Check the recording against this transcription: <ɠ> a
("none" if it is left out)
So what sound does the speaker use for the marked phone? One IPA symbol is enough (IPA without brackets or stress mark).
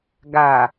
ɡ